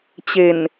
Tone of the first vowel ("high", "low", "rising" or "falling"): low